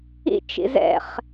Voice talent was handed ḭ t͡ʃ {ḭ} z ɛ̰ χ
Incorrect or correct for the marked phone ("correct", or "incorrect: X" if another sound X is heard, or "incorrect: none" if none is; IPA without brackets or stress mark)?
correct